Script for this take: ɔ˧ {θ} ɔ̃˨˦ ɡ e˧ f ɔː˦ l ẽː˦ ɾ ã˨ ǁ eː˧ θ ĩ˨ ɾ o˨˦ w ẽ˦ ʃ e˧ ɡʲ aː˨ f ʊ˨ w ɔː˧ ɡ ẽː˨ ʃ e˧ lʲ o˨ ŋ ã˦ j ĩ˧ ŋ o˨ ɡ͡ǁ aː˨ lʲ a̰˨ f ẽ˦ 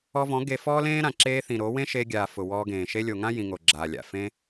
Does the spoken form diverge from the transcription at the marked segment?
yes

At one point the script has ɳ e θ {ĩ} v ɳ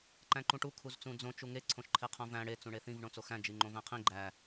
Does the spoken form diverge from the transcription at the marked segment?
no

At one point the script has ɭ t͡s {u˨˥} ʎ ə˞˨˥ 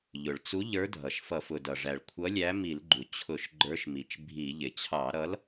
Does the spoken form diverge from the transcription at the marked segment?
no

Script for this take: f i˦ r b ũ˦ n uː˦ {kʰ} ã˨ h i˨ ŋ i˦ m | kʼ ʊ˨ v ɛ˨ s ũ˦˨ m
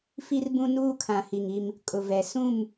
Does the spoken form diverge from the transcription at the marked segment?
no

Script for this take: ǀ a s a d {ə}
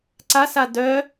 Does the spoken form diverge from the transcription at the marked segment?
yes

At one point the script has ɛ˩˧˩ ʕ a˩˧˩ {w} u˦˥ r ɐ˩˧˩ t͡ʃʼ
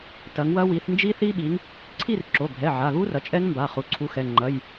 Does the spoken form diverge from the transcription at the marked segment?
yes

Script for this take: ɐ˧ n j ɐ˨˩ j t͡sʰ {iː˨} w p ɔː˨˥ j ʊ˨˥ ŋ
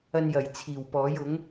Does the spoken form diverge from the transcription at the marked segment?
yes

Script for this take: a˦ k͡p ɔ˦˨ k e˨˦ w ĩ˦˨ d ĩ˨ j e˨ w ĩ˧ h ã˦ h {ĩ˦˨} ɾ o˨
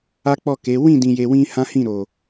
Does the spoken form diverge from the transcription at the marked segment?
no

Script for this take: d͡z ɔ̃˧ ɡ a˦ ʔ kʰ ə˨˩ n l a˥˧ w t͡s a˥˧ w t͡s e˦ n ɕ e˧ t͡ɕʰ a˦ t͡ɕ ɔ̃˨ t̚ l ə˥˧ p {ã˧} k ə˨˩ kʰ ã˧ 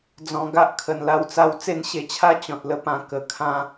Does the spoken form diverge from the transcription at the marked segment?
no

